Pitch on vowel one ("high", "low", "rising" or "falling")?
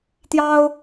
high